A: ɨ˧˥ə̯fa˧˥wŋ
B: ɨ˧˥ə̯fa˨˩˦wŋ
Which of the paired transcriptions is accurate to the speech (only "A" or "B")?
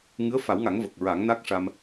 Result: B